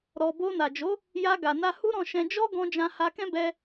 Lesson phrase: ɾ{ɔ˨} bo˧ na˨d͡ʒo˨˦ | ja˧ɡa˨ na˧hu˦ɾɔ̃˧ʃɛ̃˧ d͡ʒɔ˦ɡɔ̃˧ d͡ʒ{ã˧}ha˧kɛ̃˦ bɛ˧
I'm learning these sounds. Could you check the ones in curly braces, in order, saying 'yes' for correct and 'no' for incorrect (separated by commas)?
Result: yes, yes